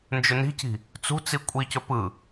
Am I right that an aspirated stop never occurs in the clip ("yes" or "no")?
yes